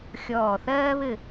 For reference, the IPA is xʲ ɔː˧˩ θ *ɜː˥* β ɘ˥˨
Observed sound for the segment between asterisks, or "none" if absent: ɜː˥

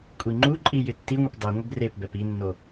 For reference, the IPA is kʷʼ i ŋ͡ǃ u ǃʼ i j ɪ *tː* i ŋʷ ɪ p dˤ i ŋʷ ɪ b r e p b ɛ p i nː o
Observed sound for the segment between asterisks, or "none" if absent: tː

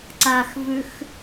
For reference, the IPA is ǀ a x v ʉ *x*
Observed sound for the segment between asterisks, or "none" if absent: x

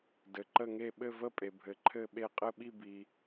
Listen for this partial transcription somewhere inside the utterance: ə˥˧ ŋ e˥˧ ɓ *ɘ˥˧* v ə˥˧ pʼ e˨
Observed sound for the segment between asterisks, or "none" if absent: ɘ˥˧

